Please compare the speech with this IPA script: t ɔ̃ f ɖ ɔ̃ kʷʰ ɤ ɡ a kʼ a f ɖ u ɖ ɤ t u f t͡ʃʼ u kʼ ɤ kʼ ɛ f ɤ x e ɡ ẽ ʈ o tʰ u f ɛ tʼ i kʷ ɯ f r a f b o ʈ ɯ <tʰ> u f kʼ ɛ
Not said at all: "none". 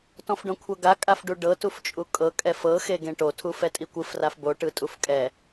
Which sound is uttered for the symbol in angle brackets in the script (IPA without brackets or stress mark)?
tʼ